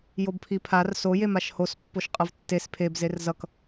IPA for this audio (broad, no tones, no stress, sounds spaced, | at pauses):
j o b pʰ i pʰ a r s o j e m a ʃ h o s pː o ʃ qʼ ʌ v tː e s pʰ e b z e r z ʌ k